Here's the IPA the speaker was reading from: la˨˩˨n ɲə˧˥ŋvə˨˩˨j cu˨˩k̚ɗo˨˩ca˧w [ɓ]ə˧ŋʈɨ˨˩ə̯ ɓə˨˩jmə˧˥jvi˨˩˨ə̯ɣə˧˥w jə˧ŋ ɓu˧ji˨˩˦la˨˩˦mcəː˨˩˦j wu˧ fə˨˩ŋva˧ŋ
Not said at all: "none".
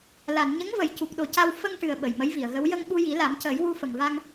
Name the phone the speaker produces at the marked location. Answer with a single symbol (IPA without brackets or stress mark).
f